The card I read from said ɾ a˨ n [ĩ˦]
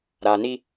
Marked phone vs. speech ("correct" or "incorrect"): incorrect